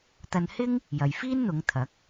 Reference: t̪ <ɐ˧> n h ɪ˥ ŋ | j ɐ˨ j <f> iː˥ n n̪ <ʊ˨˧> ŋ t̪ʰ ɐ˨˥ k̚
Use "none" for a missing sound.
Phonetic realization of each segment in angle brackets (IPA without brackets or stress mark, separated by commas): ɐ˧, f, ʊ˨˧